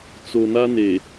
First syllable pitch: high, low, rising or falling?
low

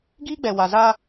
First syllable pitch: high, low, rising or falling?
high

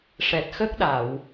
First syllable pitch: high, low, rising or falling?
low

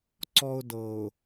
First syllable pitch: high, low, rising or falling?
high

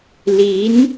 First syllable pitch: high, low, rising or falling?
rising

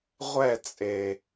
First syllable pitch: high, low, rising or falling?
falling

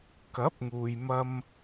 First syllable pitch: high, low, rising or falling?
rising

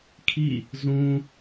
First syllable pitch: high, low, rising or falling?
falling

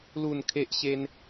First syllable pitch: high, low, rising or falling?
falling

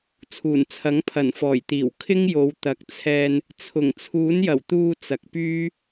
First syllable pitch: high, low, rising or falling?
low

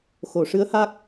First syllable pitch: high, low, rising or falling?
low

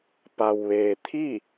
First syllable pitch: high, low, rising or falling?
low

